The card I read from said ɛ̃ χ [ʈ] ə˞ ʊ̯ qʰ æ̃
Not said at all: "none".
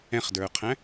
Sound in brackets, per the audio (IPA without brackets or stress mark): d